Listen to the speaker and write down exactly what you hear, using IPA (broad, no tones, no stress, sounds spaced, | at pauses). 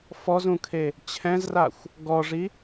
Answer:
f ɔ z ũ kʰ e | t͡ɕʰ ɛ̃ z r a xʷ | ɡ ɔ ʐ i